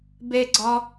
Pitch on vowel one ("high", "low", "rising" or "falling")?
high